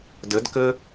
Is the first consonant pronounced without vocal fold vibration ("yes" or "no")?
no